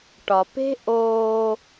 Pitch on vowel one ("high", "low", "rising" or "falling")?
low